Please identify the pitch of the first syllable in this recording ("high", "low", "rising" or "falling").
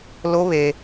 high